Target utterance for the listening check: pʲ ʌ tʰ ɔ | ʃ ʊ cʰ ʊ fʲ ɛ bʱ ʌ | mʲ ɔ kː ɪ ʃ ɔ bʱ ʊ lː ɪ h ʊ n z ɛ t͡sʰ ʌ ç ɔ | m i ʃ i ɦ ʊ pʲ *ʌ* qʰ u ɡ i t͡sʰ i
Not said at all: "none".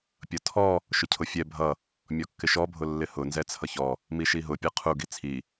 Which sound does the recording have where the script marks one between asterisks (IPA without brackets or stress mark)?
ʌ